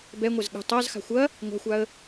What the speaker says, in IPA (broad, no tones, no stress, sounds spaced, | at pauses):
b ɛ ŋʷ ɛ z ɠ ə̤ tˤ a z x a̤ xʷ ɐ | ŋʷ a̤ xʷ a ə̯